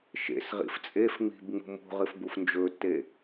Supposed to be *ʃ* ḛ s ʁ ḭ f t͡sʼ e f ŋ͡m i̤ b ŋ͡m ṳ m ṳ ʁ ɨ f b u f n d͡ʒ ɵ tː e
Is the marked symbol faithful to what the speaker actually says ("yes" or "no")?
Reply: yes